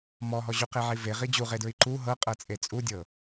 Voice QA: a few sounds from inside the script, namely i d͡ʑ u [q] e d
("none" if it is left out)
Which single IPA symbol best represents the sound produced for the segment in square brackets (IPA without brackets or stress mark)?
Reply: ʁ